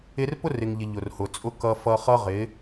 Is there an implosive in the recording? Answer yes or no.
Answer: no